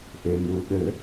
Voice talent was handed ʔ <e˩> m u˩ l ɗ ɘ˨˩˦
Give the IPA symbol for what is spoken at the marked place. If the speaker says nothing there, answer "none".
e˩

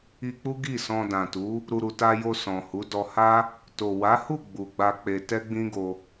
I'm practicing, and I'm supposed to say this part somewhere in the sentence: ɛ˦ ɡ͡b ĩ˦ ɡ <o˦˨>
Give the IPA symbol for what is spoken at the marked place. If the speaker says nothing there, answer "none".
o˧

